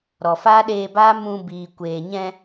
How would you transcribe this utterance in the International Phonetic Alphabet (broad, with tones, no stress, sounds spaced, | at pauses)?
ɾ ɔ˨ f aː˦ ɗ eː˧ b aː˦ m ũ˧ b iː˨ kʷ eː˨ ɲ ɛ̃˧